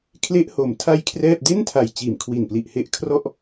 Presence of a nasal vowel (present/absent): absent